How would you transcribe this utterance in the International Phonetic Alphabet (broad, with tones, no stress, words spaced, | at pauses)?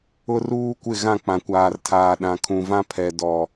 ʊ˦ruː˦ kʷɪ˦˨ ɣã˦˨k͡pã˨kʷaː˨rtʰaː˨ ɗã˨ kʰũ˨vã˦pʰɛ˨ dɔ˨